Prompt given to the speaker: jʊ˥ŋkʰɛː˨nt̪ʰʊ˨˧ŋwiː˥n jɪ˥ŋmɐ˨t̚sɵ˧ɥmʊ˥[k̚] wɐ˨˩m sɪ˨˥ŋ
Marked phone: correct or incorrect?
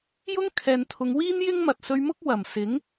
correct